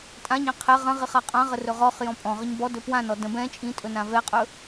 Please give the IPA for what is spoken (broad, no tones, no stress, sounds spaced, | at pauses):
tʼ ã ɲ ɛ̃ qʰ ɛ ʁ ə̃ ʁ i χ a qʼ ã ʁ ə r ɵ ʁ ɔ χ j ɔ̃ pʼ ɔ̃ ʁ ə ɲ b ɔ d ɵ p w ã n ɔ d ə̃ b ɛ̃ t͡ʃʼ ĩ tʼ ɵ n ã v ɛ qʼ ɵ